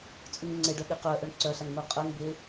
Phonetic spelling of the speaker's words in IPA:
t͡sʼ u ŋ ŋ͡ǀ e ɖ œ ɠ e q œ ʔ œ ɳ ǀ œ ɬ a ŋ n̪ ɤ qʼ œ ŋ b e

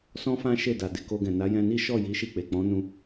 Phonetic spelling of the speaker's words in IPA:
s ɔ̃˦ f ã˦ ʃ e˦˨ d a˨ d e˨ k o˧ ɡ ɛ̃˨ n a˨˦ j ɛ̃˧ n i˦ ʃ ɔ˦˨ j i˨˦ ʃ i˦˨ k͡p e˨ k͡p ɔ̃˨˦ n ũ˧

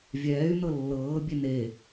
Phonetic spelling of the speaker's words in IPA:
vʲ ɛː y̯ n ɤ lː ɤː bʲ e n e

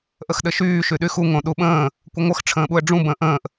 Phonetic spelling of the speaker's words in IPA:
ʔ ə x ɗ ɘ ʃ yː ʃ y ɗ y x u ŋ õ ɗ u ɓ ə̃ː | kʷ ə ŋʷ ə x ʈ͡ʂʰ ə̃ː ɓ u ə̯ ɖ͡ʐ ũ b ə̃ː ʔ ə̃ː ʔ

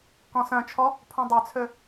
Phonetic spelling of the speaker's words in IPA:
k ɔ̃ s œ̃ t͡ʃʰ ɔ | pʰ ũ dˤ ø t͡sʰ ø

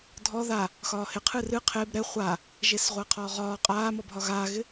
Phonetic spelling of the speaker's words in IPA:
dʱ ɔ ð a | x ɒː h ɪ qʰ ɨ r ɨ qʰ e b ɾ ɛ χʷ a | ʒ e s ʁʷ ɐː qʰ ɒː ʁ ɒː qʼ aː m ɔ b ɦ ɒ ɣ aː ɣ ɪ

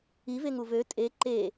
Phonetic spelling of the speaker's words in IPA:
i v e ŋ u v ø tʼ e ǃ e

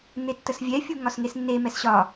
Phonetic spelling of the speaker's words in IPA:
n̪ e tː ə s vʲ ɛ fʲ u ŋ ɒ s ŋ e s nː e m ɛ s ɕ ɒ

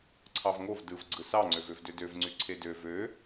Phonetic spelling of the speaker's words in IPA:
ǀʰ ɑ v ŋ o v d ɯ v ɡ͡ǀ ɯ s ɑ ŋ͡ǀ ø v ø v d ø d ø v ŋ͡ǀ y ǀʰ e d ø v ø

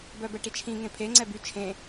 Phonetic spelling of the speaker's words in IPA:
b œ b ɛ ʈ i t͡ʃʰ ĩ ŋ ẽ pʰ e ŋ͡ǀ ɛ b y t͡ʃʰ ẽ

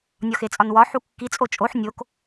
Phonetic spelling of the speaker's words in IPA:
nʲ ɒ x e t͡sʼ ɒ n w ɒ ħ u kː i t͡sʼ o t͡ʃʼ o ħ nʲ o k

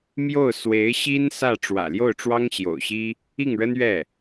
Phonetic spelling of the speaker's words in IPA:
m j o˥˩ ʊ̯ s w e˧˥ ɪ̯ ɕ i˥ n s ä˥˩ ʈ͡ʂ w ä̰˨˩ l j o˥˩ ʊ̯ ʈ͡ʂ w ɑ˥ ŋ ɕ j o̰˨˩ ʊ̯ ɕ i˥ | i˥˩ ŋ ɻ ə˥ n ɥ ɛ˥˩

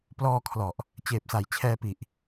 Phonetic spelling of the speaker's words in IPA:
p l ɔː˧ kʰ l ɔ˨˩ ʔ | t͡ɕ eː˨˩ p̚ s a˩˦ j t͡ɕʰ ɛː˧ p i˨˩ ʔ

